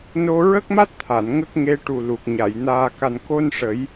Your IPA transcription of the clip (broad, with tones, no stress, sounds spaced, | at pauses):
n o˧ ɹ ə˦˥ k̚ m a˦˥ t̚ t̪ʰ a˨˩˨ n ŋ ə˦˥ k̚ ŋ e˧˥ ʈ u˨˩ l u˨˩ k̚ ɲ a˨˩˨ j n aː˨˩ k a˨˩ n k o˧ n ʂ ə˨˩˦ j